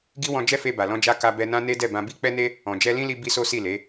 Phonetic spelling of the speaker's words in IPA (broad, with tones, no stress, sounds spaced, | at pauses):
ɡ i˦ w ɔ̃˧ d͡ʒ ɛ˦ f e˧ b a˨ l ɔ̃˧ d͡ʒ a˧ k a˧ b ɛ˧ n ã˦ n e˦ d ɛ˦˨ b ã˧ b i˦ k͡p ɛ˦ n e˦ | ɔ̃˨ d͡ʒ ɛ˧ l ĩ˦ l i˧ b i˧ s o˦ s i˦˨ l e˨˦